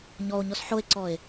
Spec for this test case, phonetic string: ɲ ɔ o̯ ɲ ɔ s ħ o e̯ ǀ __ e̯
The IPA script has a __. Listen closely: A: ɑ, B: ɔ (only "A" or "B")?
B